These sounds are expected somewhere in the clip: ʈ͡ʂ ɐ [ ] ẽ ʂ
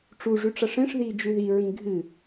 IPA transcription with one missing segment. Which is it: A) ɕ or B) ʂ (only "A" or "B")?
B